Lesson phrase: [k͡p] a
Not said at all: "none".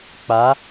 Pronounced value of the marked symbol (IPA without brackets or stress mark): k͡p